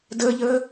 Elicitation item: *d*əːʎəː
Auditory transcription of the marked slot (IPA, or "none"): d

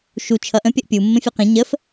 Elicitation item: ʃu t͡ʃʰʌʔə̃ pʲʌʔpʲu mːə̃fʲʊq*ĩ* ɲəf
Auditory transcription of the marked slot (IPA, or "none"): ĩ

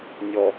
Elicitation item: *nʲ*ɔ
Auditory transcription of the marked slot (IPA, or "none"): nʲ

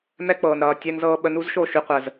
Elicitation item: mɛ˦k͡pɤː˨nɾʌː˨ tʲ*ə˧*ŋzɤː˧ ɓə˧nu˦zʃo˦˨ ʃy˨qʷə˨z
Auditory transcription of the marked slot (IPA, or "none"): ɛ˧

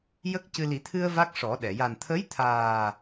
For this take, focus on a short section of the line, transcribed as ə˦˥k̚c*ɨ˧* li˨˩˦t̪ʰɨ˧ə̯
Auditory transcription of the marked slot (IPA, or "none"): ɨ˧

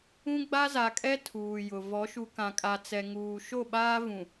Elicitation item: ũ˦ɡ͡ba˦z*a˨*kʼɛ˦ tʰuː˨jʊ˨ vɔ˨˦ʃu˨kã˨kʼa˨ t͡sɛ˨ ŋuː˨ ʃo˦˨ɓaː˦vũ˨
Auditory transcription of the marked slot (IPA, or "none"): a˨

